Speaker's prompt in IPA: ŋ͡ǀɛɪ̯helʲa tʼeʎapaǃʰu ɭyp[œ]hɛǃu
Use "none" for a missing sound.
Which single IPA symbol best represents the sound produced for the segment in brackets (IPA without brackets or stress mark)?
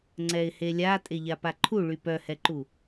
œ